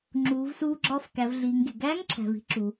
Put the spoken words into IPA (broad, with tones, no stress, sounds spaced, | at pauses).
ŋ͡ǁ uː˩˧ v s uː˧ ɡ͡ǁ ɒː˧ f k æ˩˧ v ɮ iː˩˧ ŋ ɡ e˩ ɡ æː˧˥ ŋ ǁʰ æ̤˩ v i̤˧ ǁ u˩